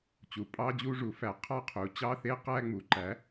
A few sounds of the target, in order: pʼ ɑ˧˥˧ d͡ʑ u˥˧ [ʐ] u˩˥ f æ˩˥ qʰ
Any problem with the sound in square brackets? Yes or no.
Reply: no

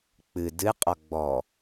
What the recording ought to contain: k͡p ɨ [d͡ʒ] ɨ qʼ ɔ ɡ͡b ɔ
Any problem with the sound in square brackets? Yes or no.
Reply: yes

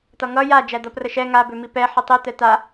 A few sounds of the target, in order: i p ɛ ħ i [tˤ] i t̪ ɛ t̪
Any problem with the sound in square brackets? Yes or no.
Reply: no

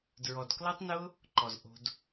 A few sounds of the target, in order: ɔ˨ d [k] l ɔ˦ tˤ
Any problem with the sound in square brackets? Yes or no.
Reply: no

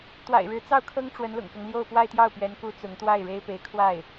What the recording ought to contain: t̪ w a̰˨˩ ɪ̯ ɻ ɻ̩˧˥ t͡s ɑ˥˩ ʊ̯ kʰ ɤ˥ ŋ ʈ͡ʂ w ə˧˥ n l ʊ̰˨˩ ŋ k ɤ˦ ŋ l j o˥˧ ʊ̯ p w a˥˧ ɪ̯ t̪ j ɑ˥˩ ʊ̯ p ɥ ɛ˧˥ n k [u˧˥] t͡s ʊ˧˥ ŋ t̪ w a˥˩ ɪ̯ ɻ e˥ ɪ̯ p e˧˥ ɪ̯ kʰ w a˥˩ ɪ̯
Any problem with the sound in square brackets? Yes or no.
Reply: no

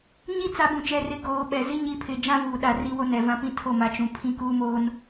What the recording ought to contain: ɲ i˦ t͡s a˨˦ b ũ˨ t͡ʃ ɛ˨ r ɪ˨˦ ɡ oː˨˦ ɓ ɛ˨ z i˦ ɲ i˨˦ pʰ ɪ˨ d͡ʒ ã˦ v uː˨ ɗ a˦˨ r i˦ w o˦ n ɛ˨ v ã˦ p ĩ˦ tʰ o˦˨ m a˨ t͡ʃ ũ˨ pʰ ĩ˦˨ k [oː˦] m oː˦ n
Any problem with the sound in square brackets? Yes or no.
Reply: yes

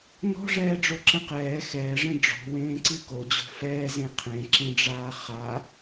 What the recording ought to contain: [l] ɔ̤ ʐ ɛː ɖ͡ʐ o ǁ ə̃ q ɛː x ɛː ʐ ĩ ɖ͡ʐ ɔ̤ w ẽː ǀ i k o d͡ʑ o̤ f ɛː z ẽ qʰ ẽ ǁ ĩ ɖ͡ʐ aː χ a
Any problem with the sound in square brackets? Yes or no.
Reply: yes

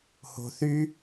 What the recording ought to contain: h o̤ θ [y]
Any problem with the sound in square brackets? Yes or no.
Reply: no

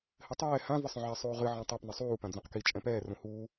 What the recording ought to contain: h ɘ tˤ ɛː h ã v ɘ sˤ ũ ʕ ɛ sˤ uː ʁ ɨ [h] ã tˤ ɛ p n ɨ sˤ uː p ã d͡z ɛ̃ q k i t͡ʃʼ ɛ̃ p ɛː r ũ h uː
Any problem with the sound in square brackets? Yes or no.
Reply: yes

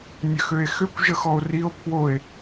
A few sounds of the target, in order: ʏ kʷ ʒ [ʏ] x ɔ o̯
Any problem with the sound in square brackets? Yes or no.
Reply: yes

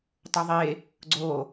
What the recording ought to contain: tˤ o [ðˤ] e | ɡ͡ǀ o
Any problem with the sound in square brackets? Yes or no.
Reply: no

